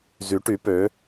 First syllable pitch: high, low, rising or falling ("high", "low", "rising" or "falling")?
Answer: rising